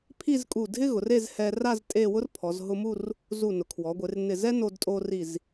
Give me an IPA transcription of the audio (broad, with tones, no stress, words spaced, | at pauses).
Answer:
pʰi˥˧zkʼu˧˩dʱɪ˥ɣʊ˩˧r e˥˧z hɛ˧ ra˥˧z tʼe˥˧ wʊ˥rpʰɔ˩˧zɦʊ˧mu˥˧r | zu˧˩nʊ˩˧kʰwɔ˩˧ɡʷɪ˩˧r nɪ˧˩zɛ˥ no˧dtʼo˧ri˧˩z